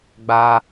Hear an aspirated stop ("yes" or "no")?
no